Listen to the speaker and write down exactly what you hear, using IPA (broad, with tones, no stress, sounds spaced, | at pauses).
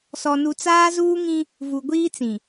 s ɔ˨ n u˨ t͡s aː˦ z uː˦ ŋ ĩ˦ | v u˨ ɡʷ iː˦ t͡s ĩ˨